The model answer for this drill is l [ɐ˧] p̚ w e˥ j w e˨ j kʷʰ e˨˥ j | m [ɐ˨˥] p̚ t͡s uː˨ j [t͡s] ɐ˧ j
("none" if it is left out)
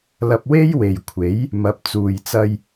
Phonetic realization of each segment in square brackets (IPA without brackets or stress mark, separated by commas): ɐ˧, ɐ˨˥, t͡s